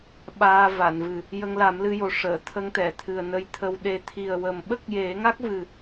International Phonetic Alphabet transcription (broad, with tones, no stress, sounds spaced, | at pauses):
ɓ aː˧ v a˨˩˨ n v ɨ˨˩ | j ə˧ ŋ l a˨˩˦ m l ɨ˧ j o˨˩ ʂ əː˨˩˨ t̪ʰ ə˧˥ ŋ t̪ ɛ˨˩˨ t̪ʰ ɨ˨˩ ə̯ n ə˧ j t̪ʰ ə˧ w ɗ e˨˩ t̪ʰ i˨˩ ə̯ w ə˨˩ m ɓ ə˦˥ k̚ j e˨˩˦ ŋ a˦˥ k̚ v ɨ˨˩